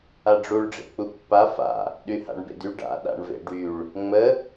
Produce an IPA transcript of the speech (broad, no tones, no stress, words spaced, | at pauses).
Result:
aɖ͡ʐuɭ ɖ͡ʐḛk͡pupːa fa̰ | ɗyha̰ɳbḛdy ɖa̰ ɗa̰ɳvḛɖyɭ | ŋ͡mə